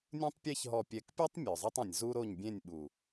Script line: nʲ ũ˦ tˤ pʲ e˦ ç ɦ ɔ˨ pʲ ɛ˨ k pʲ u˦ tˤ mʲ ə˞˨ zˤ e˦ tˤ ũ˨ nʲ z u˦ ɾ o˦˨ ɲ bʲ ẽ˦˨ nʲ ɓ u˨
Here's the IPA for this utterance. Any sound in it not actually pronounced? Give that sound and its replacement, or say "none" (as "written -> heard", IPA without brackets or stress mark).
none